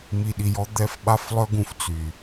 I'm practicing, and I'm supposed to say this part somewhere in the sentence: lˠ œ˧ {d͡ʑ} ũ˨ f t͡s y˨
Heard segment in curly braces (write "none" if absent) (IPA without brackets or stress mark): ɡ